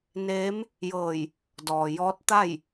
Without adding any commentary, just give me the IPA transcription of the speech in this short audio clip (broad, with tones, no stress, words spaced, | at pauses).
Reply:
neː˧˥m | jɤː˧˩j | dɔː˩ jɔː˧˥t̚t̪a˥˨j